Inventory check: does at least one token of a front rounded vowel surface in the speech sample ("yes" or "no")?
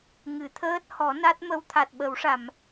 no